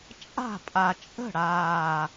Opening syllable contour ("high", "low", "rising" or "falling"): falling